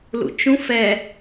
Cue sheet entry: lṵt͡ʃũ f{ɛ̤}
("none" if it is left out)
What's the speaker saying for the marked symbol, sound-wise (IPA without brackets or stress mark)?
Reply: ɛ